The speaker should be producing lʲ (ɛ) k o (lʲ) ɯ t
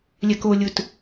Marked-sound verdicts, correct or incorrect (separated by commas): correct, correct